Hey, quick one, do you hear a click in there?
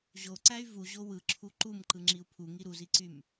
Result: yes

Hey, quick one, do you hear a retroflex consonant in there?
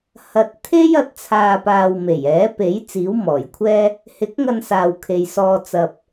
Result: no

